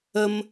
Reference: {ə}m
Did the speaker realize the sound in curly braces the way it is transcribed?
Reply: yes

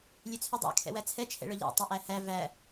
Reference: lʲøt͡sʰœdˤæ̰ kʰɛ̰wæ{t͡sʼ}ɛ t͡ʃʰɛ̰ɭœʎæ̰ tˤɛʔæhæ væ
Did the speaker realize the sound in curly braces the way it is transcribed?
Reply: no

